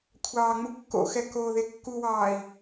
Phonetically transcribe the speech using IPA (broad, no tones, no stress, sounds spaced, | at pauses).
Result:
kʷʰ ɑː ŋ͡m u kː o̰ x ɛ k oː ð e kː u w ɑː i̯